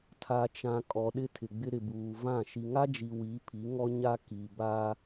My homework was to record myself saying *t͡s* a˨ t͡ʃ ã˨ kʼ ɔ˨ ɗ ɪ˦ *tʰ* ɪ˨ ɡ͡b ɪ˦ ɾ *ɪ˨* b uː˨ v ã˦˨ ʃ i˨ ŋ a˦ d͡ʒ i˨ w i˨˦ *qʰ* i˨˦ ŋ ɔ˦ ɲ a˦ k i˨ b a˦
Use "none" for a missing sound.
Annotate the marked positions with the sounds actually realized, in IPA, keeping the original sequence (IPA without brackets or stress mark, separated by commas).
tʰ, tʰ, ɪ˨, pʰ